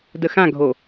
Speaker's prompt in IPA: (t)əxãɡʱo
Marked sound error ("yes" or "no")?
yes